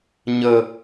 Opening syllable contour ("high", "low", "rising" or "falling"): high